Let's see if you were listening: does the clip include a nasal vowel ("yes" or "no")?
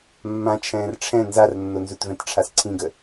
yes